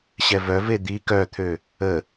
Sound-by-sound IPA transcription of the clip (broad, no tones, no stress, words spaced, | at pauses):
ɕɛvœve d̪i kœt̪ʰø | ə